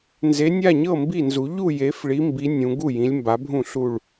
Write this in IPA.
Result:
n z e˨˥ nʲ a˥˨ ɲ ɤ˥˨ m b i˥˨ n z u˨˥ ʎ u˥˨ j e˨˥ f ɭ i˨˥ m b i˨˥ nʲ ũ˨˥ ɡ u˥˨ j ĩ˨˥ lʲ m b a˨˥ bʱ ũ˥˨ ɬ u˥˨ ɭ

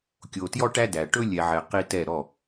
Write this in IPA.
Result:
kʲ o˨ t j ɔ˦ ʈ æ˦ d æ˨ ʈ ɵ˦ lʲ ɛ˨ ʕ ɛ˨ q i˦ t ɛ˦˨ ɾ ɔ˦˨

